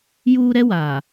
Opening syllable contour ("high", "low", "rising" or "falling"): high